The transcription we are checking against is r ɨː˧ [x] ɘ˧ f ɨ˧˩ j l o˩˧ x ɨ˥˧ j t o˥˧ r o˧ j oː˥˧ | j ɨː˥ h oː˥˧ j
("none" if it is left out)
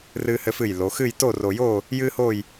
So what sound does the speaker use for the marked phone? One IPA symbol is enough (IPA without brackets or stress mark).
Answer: h